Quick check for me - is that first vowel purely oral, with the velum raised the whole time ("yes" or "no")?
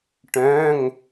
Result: no